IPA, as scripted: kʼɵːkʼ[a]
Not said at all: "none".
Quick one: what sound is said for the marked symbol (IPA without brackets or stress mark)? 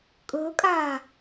aː